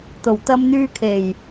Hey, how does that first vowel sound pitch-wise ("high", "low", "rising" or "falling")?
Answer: low